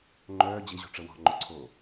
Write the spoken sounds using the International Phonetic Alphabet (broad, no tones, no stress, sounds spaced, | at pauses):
ŋ͡ǃ œː d͡ʑ e ʑ ɔ̤ ʈ͡ʂ ə w ɔ̤ ŋ͡ǃ o ǀʰ oː